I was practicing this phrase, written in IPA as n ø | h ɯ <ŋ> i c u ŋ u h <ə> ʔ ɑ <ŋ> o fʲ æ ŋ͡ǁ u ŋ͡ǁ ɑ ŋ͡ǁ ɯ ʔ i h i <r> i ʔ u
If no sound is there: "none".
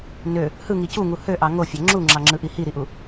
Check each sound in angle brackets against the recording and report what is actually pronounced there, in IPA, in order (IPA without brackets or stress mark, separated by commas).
ŋ, ø, ŋ, ɾ